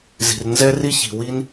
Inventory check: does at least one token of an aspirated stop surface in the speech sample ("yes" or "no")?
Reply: no